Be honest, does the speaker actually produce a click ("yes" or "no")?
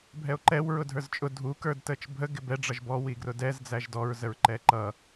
yes